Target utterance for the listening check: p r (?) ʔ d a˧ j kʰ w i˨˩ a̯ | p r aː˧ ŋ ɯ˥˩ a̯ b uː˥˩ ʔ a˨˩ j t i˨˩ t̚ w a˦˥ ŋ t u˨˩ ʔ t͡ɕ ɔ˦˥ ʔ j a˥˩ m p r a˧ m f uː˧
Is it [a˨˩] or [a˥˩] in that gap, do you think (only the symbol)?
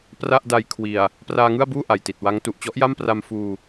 a˥˩